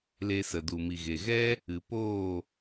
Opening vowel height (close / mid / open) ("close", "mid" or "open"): mid